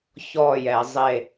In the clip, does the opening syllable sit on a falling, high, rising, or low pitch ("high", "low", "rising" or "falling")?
falling